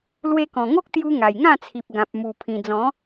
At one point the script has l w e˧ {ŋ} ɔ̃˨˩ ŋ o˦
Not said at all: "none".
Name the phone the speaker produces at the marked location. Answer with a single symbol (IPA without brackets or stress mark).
k